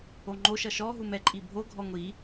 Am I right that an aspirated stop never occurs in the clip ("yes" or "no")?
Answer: yes